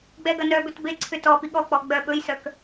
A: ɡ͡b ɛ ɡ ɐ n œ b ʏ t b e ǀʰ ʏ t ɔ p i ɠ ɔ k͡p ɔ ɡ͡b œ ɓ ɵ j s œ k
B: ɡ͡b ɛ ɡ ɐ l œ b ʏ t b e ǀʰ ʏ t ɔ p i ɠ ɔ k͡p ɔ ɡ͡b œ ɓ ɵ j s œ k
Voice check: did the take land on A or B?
A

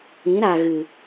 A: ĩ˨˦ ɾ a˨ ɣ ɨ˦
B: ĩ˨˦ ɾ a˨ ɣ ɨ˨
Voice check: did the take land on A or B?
B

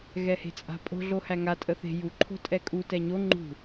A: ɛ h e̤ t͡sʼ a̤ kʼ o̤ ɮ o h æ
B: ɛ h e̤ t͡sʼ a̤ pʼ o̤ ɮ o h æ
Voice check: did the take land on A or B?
B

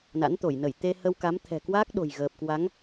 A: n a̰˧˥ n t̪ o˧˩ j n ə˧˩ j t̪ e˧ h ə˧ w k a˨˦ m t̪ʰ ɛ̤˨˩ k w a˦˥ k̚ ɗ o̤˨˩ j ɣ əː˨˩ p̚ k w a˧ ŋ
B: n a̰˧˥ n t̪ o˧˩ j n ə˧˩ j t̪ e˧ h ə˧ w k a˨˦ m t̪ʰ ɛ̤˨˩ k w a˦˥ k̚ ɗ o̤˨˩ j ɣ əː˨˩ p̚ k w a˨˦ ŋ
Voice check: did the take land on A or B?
B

